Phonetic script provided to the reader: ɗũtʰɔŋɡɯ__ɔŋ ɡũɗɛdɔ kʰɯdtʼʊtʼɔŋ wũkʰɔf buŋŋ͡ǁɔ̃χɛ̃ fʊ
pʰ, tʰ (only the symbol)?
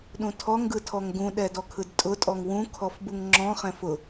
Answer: tʰ